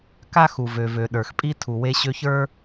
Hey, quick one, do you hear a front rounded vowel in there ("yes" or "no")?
yes